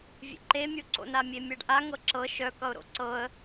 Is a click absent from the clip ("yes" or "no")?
no